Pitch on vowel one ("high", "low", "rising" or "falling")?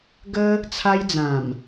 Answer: high